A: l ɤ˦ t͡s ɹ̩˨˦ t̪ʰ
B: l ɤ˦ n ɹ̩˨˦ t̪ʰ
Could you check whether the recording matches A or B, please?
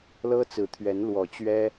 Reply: A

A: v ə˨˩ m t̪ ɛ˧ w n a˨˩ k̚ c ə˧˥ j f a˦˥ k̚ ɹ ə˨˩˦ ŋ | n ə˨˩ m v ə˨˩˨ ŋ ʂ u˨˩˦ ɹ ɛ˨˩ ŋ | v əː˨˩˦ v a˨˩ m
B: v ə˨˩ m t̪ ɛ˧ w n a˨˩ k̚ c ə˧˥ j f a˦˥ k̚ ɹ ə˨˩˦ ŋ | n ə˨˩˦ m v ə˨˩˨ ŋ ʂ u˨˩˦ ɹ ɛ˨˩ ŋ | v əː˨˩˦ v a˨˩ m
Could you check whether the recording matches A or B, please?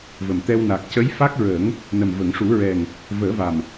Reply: A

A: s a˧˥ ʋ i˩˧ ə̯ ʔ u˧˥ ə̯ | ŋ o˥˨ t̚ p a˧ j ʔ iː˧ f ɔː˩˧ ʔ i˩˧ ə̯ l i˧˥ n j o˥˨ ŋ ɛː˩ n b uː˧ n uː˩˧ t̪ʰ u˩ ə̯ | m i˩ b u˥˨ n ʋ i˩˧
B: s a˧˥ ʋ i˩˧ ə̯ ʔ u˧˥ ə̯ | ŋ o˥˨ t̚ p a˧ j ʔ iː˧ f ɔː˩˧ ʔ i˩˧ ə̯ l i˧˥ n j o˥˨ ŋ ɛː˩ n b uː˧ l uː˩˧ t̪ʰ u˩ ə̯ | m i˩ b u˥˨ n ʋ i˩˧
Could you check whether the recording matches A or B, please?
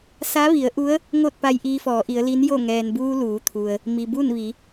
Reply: B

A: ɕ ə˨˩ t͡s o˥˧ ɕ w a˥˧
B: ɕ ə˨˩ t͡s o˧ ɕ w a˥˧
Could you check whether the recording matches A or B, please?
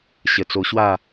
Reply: B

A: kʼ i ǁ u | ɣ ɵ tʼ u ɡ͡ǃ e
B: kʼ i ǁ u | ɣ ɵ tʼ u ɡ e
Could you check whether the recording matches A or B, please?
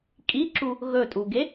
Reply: B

